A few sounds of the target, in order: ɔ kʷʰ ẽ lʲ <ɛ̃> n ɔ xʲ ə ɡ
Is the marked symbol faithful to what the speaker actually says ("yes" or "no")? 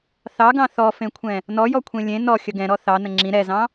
no